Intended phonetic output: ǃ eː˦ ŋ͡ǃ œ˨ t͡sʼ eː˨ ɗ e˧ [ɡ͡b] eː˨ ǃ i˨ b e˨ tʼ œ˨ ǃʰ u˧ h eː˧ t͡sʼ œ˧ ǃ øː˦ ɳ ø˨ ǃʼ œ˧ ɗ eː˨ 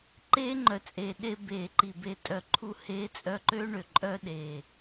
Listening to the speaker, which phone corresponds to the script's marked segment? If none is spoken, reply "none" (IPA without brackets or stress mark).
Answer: b